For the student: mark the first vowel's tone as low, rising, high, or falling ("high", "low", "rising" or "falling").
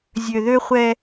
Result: low